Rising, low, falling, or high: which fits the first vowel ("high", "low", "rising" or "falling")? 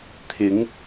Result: rising